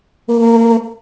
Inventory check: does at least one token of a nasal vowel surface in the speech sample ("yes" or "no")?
no